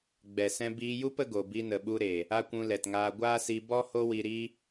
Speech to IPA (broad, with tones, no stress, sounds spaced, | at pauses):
ɡ͡b ɛ˨ s ɛ̃˧ b iː˧ j u˦ p ə˦ ɡ o˨ b i˧ n ə˨ ɓ u˧ ɾ eː˨ | a˦ kʷ ũ˧ l ɛ˨ t ŋ aː˧ ɡʷ aː˦ s i˧ b ɔ˦ h o˦ w i˧ ɾ iː˦